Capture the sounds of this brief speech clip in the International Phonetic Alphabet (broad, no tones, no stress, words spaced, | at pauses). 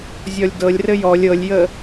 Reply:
zʲɔlʲdɤlʲrɘ jɔlʲ ɤlʲjə